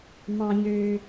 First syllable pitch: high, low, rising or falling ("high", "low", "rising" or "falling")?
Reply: high